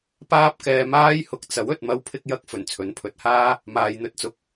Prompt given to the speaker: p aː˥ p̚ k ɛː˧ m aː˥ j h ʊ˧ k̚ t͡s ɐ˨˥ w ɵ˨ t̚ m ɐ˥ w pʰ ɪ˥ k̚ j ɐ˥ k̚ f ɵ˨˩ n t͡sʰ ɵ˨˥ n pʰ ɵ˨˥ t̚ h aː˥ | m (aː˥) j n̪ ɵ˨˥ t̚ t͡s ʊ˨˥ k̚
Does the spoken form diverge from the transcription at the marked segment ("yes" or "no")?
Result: yes